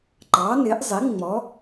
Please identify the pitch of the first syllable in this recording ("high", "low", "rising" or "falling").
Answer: rising